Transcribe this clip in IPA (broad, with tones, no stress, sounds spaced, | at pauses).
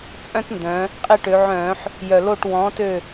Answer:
t͡sʼ œ̃˦ t n d œ̃˩˧ | qʼ e˦ ʈ ø˩˧ ʕ œ̃ː˧˩˧ ħ | j œ˨˩ l o˦˨ ʈ w ɔ̃ː˨˥ t ø˦˨